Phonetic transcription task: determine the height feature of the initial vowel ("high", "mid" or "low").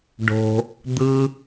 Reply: mid